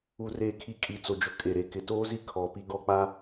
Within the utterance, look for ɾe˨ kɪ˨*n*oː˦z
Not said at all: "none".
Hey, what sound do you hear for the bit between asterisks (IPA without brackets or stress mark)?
t